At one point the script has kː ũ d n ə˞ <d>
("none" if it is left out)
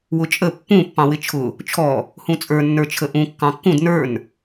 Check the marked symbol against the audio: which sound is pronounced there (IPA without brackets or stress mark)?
n